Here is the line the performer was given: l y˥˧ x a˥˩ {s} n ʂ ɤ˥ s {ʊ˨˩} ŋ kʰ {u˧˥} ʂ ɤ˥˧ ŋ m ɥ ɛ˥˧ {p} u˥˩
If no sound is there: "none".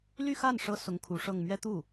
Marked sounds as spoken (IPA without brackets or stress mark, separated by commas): none, ʊ˧˥, u˧˥, t̪